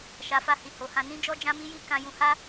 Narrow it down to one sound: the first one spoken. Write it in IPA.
ʃ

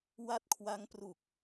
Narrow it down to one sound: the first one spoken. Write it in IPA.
w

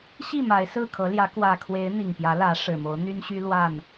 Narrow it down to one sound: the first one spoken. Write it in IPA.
ɕ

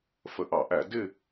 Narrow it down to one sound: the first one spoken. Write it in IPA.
f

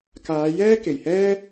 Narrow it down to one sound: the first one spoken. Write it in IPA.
k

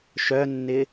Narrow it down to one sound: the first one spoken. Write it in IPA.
ʃ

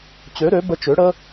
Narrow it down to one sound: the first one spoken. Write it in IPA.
t͡ɕ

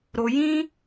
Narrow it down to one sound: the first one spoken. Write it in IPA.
ɾ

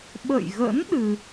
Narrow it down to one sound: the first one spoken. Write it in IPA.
ɓ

